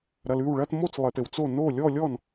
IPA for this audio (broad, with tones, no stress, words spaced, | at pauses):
ɾɐ˨l ʉ˥˩wɭɐ˥˧t mo˥˧t͡slˠɘ˨tɘ˨wt͡so˥˩ no˥˩lʲɔ˥˧lʲɔ˥˩n